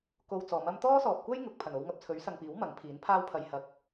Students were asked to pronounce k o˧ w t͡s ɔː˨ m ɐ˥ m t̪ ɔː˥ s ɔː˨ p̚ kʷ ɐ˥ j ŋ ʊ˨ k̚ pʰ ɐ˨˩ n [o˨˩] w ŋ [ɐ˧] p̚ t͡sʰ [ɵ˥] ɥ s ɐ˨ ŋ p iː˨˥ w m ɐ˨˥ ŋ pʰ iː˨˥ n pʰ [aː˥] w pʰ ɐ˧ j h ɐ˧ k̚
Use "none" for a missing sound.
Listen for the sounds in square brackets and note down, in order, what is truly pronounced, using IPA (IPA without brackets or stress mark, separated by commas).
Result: o˧, ɐ˨, ɵ˨˥, aː˥